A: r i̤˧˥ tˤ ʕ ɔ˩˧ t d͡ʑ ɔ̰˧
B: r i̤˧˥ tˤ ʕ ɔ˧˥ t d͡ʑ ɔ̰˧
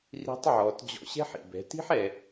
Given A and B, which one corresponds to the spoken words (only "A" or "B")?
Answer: A